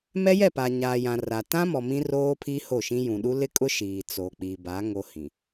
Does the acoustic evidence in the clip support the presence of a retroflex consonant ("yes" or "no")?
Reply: no